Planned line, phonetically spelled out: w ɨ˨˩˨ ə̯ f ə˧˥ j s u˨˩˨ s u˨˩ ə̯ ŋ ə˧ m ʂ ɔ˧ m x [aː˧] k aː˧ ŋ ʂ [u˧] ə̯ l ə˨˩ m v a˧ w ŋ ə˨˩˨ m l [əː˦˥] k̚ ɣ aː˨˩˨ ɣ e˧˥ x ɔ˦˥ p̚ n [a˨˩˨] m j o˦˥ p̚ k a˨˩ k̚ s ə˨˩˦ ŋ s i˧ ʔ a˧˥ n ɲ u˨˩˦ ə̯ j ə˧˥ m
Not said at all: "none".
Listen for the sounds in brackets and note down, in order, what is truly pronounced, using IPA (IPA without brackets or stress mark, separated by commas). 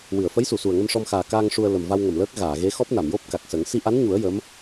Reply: aː˨˩, u˧, əː˦˥, a˨˩˨